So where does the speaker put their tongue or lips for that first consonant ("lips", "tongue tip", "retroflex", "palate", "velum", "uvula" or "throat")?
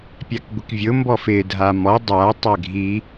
lips